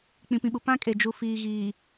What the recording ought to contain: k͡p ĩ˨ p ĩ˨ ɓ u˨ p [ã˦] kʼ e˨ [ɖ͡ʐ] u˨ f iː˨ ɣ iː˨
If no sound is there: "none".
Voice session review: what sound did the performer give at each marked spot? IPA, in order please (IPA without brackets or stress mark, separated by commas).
ã˦, d͡ʒ